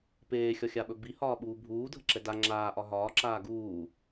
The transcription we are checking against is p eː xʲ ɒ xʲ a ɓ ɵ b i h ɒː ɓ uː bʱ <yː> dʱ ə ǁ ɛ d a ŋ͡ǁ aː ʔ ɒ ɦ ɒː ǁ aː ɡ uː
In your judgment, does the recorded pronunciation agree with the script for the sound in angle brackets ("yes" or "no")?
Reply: no